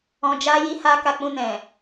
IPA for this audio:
ɔ̃˨ d͡ʒ a˧ j i˧ h a˧ k a˧ k͡p ũ˧ n ɛ̃˨

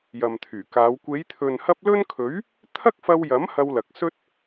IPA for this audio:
j ɐ˨ m t̪ʰ yː˨˩ k aː˨˧ w kʷ e˨˧ j t̪ʰ ɵ˨ n h ɐ˧ p̚ l ɵ˥ n kʰ ɵ˨˥ ɥ | t̪ʰ ɐ˥ k̚ f ɐ˧ w j ɐ˨˥ m h ɐ˧ w l ɐ˨ k̚ s ɵ˥ t̚

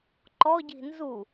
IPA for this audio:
ǃ ɔ ɟ i̤ n z u

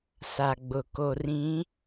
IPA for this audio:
s a˨ ɡ͡b ʊ˨ k o˨ r ĩ˨˦

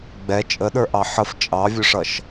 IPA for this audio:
ɡ͡b ɛ t͡ʃʼ ə ɗ ə˞ ʔ ɑ ħ ə f t͡ʃʼ ɑ vʲ ʊ ʂ ʌ ʃ

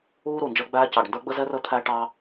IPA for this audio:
uː˥ ɾ u˨˩ n d͡ʒ əː˥ ɡ͡b æː˥ c ɑ˨˩ ɖ n d ə˞˥ ɡ͡b ə˥ z ɛ˥ r ə˥ t̪ʰ æ˥ ʈ ɑ˥

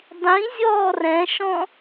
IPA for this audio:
dˤ ĩ zʲ ɔː r ɛ̃ ʃ ɔ̃

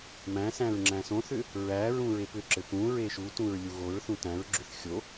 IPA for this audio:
m æ̃ s æ̃ ɹ ŋ͡ǁ æ̃ s õ θ ʏ | ɹ æ ɹ ũ ɹ e p ʏ ǁ ɘ p ũ ɹ e ʃ u t ũ ɹ lʲ u ɣ o ɹ θ ũ t æ̃ ɹ ɡ͡ǁ ʏ θ xʲ o

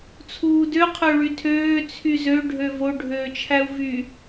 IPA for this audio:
t͡sʰ uː d ø qʰ ø ɭ y tʰ øː t͡sʰ y z ø ɖʱ ø v o ɖʱ øː t͡ʃʰ æ u̯ v y

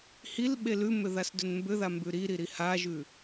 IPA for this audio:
h i l ɓ e l ʉ m ʏ ð a s d ʏ n m b ʏ ð a m b ʉ ɾ i ɾ i ɾ i h a ʒ ʉ

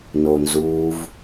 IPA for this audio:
n o n z uː v

